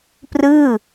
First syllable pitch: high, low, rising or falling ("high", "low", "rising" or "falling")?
falling